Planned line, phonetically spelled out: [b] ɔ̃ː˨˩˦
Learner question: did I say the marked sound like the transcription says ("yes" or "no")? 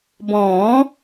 yes